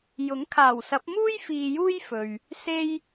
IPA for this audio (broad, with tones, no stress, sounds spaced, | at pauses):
j ʊ˨˥ ŋ kʰ aː˨˩ w s ɐ˨˥ p̚ m uː˥ j f iː˨ j uː˥ j f ɵ˨ ɥ | s e˥ j